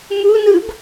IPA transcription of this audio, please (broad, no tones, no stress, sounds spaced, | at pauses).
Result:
m u n ɯ b